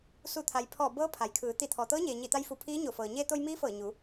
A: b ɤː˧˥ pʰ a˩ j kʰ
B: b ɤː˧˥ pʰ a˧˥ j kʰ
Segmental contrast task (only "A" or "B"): A